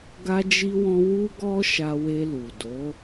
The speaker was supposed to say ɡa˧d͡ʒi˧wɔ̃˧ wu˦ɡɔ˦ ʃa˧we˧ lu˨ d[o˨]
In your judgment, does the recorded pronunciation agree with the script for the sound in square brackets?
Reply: no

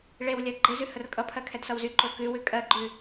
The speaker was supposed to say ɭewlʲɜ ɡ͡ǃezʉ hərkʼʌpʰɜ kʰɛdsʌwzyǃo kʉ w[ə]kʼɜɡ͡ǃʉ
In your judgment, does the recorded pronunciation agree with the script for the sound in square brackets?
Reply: no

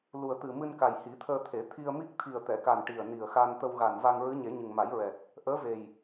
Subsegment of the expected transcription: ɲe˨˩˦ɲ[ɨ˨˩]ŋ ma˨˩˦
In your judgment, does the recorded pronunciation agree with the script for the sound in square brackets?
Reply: yes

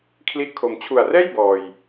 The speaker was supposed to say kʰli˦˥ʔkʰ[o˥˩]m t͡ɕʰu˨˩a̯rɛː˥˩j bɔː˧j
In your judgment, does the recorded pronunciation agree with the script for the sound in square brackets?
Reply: no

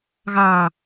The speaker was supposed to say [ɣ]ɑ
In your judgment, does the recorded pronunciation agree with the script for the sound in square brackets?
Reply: yes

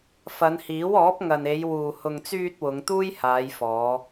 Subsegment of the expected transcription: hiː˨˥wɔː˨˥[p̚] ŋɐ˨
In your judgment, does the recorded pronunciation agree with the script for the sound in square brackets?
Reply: yes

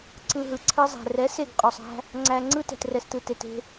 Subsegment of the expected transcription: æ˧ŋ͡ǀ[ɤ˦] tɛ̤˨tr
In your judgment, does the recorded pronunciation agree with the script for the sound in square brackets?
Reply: no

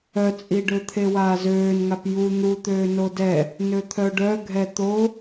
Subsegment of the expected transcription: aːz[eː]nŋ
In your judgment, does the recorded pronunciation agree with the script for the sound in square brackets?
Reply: no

